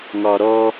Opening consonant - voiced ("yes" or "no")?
yes